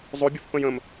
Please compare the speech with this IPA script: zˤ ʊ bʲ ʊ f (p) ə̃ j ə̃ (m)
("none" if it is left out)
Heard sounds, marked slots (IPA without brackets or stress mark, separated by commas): p, m